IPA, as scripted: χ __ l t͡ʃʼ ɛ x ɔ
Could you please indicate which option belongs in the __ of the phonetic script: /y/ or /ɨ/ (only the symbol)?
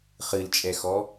ɨ